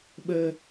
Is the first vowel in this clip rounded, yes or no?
no